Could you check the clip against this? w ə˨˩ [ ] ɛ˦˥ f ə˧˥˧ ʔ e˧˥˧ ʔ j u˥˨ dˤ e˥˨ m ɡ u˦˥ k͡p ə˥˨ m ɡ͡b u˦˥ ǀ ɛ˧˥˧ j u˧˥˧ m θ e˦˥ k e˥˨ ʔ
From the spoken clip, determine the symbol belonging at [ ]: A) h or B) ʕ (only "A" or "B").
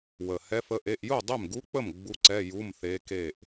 A